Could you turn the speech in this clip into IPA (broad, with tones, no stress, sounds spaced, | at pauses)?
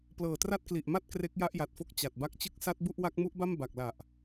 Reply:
p l ɤː˨˩ t r a˥˩ t̚ k l i˨˩ ʔ m a˥˩ t̚ k r e˦˥ k̚ j a˥˩ ʔ j a˨˩ t̚ f o˥˩ k̚ t͡ɕ a˨˩ t̚ b a˦˥ k̚ t͡ɕ ɯ˥˩ k̚ s a˦˥ t̚ b u˥˩ ʔ w a˦˥ k̚ m u˦˥ ʔ b a˥˩ m b a˨˩ k̚ l a˨˩ ʔ